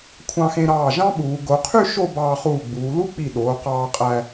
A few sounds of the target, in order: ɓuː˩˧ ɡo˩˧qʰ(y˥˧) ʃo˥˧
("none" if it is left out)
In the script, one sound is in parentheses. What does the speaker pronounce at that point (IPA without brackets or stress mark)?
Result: y˥˧